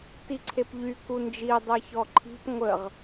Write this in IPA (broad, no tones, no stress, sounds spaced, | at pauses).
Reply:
t i ǀʰ e p ʎ y k u n d͡ʒ i dˤ e ç ɔ ǃʰ i̤ p ŋʷ ə ʁ